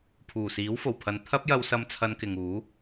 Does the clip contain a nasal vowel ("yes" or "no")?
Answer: no